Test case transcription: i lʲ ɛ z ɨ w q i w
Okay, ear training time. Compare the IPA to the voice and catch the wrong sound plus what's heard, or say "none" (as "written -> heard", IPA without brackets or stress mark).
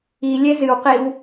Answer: none